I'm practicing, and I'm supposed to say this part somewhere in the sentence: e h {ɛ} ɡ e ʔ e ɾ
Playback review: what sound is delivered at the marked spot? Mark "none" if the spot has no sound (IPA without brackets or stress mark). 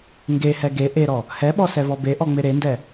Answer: ɛ